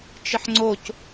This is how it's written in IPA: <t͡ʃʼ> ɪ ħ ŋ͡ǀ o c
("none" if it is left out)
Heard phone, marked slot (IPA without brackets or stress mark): t͡ʃ